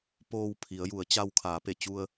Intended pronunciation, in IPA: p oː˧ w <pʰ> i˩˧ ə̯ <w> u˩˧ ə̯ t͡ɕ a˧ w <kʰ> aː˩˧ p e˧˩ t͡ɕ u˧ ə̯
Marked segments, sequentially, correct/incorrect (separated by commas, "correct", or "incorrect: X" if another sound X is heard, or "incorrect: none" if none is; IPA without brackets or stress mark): correct, incorrect: j, correct